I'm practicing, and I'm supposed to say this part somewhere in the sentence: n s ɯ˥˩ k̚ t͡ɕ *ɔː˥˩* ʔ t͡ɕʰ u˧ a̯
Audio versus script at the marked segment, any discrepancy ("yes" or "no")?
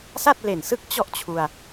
yes